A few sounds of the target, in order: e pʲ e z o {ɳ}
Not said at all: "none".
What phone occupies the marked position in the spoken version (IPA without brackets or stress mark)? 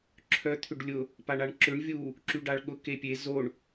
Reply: ɳ